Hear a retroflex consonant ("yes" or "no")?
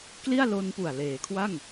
no